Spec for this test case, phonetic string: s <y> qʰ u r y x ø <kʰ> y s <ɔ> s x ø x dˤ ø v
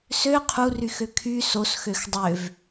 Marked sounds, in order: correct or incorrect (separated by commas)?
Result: incorrect, correct, incorrect